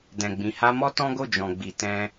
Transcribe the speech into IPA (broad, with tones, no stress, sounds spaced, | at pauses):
d ɛ̃˨ ɡ͡b ĩ˨ h a˧ m ɔ˦ t ɔ̃˦ ɡ o˦˨ d͡ʒ ɔ̃˨ ɡ͡b i˨ t ɛ̃˧